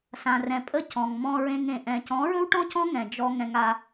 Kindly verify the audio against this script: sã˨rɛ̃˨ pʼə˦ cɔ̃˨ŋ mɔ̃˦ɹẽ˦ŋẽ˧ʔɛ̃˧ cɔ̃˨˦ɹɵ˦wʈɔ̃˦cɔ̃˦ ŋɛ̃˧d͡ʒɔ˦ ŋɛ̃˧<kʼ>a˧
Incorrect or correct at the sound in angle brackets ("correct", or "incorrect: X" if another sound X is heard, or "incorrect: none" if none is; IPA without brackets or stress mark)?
incorrect: ŋ